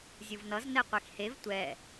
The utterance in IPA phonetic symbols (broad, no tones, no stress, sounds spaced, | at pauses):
zʲ ɯ v n ʌ z n ɛ qʷ e x h e v tʷ ɛ